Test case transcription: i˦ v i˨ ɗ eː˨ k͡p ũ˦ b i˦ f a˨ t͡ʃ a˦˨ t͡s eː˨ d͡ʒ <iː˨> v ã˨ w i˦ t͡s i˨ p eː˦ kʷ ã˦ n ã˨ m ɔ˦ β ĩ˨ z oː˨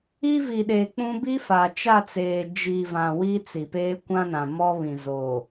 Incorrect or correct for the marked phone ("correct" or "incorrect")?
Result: incorrect